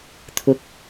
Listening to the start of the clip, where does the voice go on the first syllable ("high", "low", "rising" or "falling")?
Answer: rising